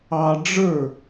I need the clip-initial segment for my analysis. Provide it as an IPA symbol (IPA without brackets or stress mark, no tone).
ɑ